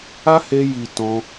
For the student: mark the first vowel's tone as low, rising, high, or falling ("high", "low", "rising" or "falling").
high